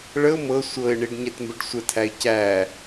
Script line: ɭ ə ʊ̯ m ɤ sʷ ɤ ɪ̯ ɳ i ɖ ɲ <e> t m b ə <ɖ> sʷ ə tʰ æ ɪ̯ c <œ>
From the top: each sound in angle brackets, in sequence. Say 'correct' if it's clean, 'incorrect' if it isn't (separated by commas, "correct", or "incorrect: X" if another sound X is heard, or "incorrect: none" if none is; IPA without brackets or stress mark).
incorrect: ɛ, correct, incorrect: æ